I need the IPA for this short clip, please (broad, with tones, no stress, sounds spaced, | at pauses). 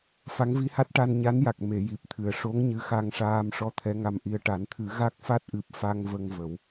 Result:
f a˧˥ ŋ v i˧˥ h a˦˥ t̚ ʈ a˧ n ɲ a˧˥ n j a˨˩ k̚ m e˨˩˨ j i˨˩ p̚ t̪ʰ ɨ˨˩ ə̯ ʂ o˧˥ ŋ ɲ ɨ˧˥ x a˧ ŋ ʂ aː˧ m ʂ ɔ˧ t̪ʰ ɛ˧˥ ŋ a˧ m ʔ i˧ ə̯ ʈ a˨˩˦ n t̪ʰ ɨ˨˩˦ ɣ a˦˥ k̚ f a˦˥ t̚ ʔ ɨ˨˩ p̚ f a˧ ŋ v ə˧ ŋ v ə˨˩˦ w